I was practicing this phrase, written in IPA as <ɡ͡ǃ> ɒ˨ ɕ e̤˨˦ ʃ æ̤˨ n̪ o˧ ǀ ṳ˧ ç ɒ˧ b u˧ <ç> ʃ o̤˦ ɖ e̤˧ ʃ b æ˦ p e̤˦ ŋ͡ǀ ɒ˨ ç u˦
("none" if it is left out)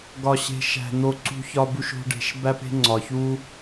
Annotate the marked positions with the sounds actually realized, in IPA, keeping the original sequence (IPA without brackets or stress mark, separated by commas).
ɡ, none